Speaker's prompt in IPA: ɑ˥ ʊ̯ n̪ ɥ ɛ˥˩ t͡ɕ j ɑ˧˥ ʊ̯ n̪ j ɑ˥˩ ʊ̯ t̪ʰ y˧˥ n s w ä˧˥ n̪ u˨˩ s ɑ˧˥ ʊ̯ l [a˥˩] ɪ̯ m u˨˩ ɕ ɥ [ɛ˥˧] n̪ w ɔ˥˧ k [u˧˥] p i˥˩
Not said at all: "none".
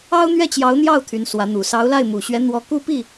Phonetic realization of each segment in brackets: a˥˩, ɛ˧˥, u˥˧

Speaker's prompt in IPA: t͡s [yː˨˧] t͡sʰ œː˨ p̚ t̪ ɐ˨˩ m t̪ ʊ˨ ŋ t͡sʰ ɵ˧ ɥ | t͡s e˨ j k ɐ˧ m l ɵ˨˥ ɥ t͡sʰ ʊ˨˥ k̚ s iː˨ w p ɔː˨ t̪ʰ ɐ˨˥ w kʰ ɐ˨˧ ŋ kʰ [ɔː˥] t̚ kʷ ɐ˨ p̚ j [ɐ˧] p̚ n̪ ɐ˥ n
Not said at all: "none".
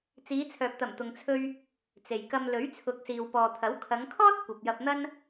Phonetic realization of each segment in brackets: iː˨˧, ɔː˥, ɐ˧

